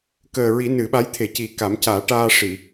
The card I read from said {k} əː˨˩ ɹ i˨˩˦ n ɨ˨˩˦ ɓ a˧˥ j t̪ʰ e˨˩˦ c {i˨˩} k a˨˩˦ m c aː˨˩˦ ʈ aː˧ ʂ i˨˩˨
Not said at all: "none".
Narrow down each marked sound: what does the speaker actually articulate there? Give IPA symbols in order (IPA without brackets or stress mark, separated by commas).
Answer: k, i˨˩